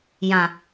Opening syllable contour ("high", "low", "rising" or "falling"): low